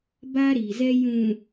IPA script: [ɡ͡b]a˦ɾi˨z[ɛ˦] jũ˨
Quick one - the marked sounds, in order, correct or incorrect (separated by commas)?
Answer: incorrect, correct